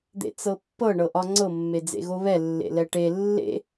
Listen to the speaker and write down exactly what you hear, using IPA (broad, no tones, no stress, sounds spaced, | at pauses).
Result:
d̪ ḛ t͡s ɤ pː ɤ ɳ ɤ ʔ ɒ ŋ͡ǀ ɤ mː e d͡z ḛ ɣ o β ɛ lː ḛ l ɛ ʈ e lː ḛ